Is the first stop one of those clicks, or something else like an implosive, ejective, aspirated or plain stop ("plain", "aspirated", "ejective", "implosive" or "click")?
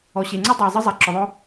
click